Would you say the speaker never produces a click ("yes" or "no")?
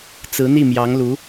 yes